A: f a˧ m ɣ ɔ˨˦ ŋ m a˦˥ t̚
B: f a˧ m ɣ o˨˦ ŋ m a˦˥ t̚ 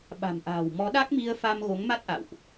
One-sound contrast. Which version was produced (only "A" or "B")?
B